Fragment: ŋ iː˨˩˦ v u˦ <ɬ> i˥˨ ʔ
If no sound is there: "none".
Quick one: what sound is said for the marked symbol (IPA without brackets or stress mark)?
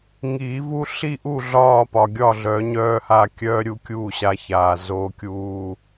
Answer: ɬ